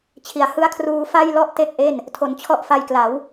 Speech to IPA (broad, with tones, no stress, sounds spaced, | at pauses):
t͡ɕʰ i˩˦ a̯ h ɯ˦˥ a̯ kʰ r uː˧ f a˥˩ j l ɔ˥˩ ʔ t e˥˩ k̚ ʔ e˥˩ n | tʰ o˩˦ n t͡ɕʰ ɔ˦˥ ʔ f a˧ j k l a˩˦ w